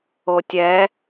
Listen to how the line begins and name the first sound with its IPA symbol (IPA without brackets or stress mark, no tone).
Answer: o